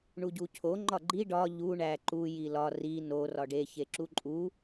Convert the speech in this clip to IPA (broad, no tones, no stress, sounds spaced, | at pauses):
ɳ u ɟ u cʰ o ŋ͡ǃ ɒ ɡ͡ǃ i ɖ ɒ ʎ u ɳ æ ǃ u j i l ɒ r i n o r ɒ ɖ e ç e ǁ u ǃʼ u